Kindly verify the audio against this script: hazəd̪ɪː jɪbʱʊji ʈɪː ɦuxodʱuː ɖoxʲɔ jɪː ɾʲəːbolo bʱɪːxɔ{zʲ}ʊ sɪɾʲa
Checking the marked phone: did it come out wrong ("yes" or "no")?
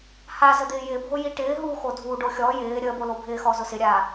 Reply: yes